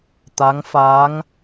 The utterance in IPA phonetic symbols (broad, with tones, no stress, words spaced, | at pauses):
t̪a˧˥ŋfaː˧˥ŋ